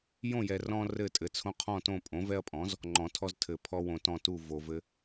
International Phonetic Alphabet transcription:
jõ˥˨jɛ˨ rɔ̃˦ rɘ˥˨tʼɘ˩˥t͡sʰõ˦ qʰɔ̃˥˨tõ˥˨ pʼõ˩˥vɛ˦ɐ̯pʼɔ̃˩˥z | ŋ͡ǃɔ̃˨˩˦tʰɔ˦ztʰɘ˨˩˦ pʰɔ˦wõ˨ tɔ̃˥˨tu˥˨ vo˨vɘ˦

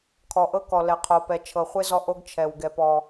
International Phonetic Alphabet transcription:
kʰɔ˨ʔɤ˦kɔ˨ lɛ˨qʰo˨pɛ˨ t͡ʃʰɤ˨χʷe˦ zɔ˦ʔo˦ɡ t͡ʃʰɛ˨w ɡɛ˦pɔ˦

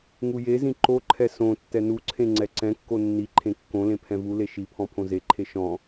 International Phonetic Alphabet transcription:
ŋujezĩ ǃoǃʰɛ sõ tːɛnuǀʰẽ ŋ͡ǀɛǀɛ̃kːo nːiǃʰẽ kːõlẽ pʰɛ̃vule ʃipʰɔ̃ pʰõzeǃʰe ʃɔ̃

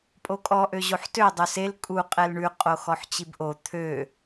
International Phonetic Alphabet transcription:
pʼokʼɔ ʔøʑoħtø dˤøsel kʼu qʼɛlɳʉ qʼoxɔħt͡ɕibʔo t̪ʰø

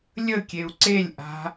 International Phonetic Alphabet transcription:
lʲəkʲeu̯ ǀelʲʔa̤

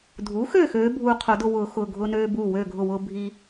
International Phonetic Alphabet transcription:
dʱu˩˥xøː˥˨x øː˩˥bʱuː˧qʰo˨˩˦dʊ˧ wʊː˨˩˦ xʊ˩˧˩ ɡʱʊː˧nøː˧ buː˧˩wøː˧˩ɡʱʊ˧˩wʊː˧ bʱi˧

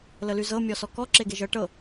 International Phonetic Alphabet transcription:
ləlyzɤ mʲɔsɔkɔ ǁeɡeʒɤ ʈɤ

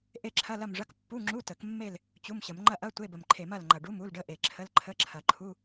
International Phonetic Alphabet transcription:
ʔe˦˨ǁʰɐ˧˥˧lɐ˦˨mʐɐ˧˥˧k pːu˧˥˧ŋ͡ǁu˧˥˧tə˨˩˦kmːe˦˨l | t͡ɕu˧˥˧mɕə˨˩˦m ŋ͡ǃɐ˦˨ʔɐ˧˥˧ tʷe˧˥˧bə˨˩mǃʰe˨˩˦m ɐ˦˨lŋ͡ǃɐ˨˩ɖu˧˥˧m u˧˥˧lɖə˧˥˧ʔe˨˩ǁʰə˧˥˧l ǃʰə˧˥˧ǁʰɐ˨˩˦ǃʰu˧˥˧

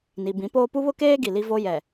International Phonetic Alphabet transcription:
ni˨bĩ˨˦poː˦ pu˦βʊ˦keː˦ ɡi˨li˦vo˦ jɛ˨

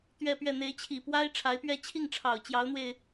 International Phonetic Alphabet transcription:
t̪ɥɛ˥˧pɥɛ˥˩ n̪e˧˥ɪ̯t͡ɕʰi˨˩ pwa˥ɪ̯ ʈ͡ʂʰa˧˥ɪ̯pɥɛ˥˧ t͡ɕʰi˥˩ŋʈ͡ʂʰɑ˨˩ʊ̯ t͡ɕjɑ˧˥ʊ̯n̪we˧ɪ̯

